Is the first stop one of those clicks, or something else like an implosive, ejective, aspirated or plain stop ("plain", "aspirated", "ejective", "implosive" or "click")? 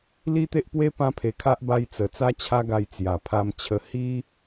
plain